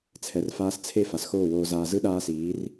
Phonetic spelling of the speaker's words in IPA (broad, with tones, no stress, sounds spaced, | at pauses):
t͡sʰ ɛ˨ r f aː˧ s t͡sʰ e˧ f a˨ s x oː˦˨ w oː˧ z aː˧ z ɯ˦ ɗ aː˦ s iː˨˦ r